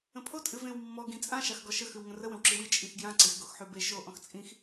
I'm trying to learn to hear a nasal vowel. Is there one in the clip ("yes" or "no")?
yes